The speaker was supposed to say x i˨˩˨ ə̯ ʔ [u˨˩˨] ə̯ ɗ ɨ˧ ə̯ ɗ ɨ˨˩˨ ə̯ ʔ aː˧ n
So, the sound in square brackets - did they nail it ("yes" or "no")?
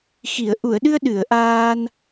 yes